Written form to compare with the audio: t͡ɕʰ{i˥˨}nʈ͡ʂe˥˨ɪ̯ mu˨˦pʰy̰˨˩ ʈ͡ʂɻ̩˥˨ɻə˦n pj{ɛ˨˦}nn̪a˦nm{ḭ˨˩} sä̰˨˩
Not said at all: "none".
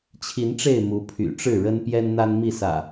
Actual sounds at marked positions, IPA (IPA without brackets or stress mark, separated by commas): i˨˦, ɛ˦, i˥˨